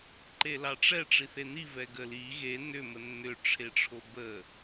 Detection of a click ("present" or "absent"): present